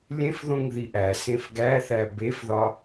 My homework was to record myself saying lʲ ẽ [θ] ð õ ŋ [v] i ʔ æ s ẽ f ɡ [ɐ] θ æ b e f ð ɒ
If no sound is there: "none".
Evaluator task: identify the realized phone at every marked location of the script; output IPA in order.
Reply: f, ð, æ

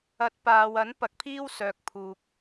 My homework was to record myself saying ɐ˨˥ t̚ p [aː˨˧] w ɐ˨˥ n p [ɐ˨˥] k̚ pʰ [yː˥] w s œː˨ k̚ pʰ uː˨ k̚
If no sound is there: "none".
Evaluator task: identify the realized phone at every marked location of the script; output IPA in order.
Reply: aː˨, ɐ˨˥, iː˥

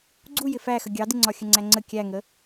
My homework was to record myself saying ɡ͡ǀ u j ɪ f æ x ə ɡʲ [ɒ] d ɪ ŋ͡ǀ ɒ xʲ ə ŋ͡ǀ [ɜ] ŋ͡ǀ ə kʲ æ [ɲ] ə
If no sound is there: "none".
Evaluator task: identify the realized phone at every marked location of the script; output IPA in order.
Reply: ɑ, æ, ŋ

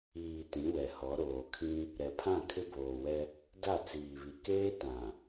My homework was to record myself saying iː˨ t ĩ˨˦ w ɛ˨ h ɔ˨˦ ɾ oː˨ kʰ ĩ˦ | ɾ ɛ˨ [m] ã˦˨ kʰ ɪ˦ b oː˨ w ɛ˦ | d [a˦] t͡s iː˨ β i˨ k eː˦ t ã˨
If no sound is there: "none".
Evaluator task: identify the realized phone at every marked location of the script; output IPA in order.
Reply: pʰ, a˦˨

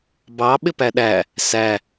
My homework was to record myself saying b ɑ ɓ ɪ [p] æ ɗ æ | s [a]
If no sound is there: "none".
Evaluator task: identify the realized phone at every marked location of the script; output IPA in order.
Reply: p, æ

